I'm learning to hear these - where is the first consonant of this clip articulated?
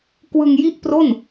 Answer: velum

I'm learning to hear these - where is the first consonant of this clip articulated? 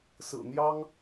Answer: tongue tip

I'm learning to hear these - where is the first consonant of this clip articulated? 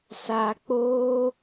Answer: tongue tip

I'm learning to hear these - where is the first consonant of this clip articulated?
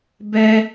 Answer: lips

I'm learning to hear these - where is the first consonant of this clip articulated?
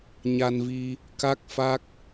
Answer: palate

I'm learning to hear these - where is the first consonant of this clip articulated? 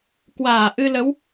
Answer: velum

